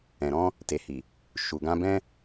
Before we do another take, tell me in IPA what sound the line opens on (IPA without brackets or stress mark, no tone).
ɛ̃